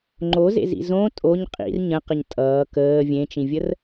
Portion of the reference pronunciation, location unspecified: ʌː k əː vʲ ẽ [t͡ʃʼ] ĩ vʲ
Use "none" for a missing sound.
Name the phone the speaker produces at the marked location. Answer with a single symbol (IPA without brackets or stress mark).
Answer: t͡ʃ